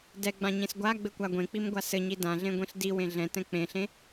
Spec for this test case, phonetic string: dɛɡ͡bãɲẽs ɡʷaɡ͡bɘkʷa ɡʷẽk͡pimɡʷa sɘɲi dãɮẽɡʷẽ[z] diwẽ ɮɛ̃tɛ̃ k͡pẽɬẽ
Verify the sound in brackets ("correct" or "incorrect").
incorrect